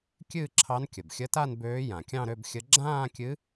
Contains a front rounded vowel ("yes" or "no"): yes